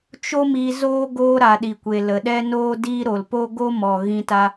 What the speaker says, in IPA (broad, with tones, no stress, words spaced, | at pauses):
t͡ʃo˦mi˧ zoː˦ ɡoː˦ɾa˨ ɗi˨kʷe˨ lə˨ɗɛ˦ noː˦diː˦ɾo˨l po˦ɡo˦ mɔ˨ ɣĩ˧ta˧